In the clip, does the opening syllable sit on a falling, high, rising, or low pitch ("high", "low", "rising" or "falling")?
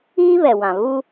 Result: high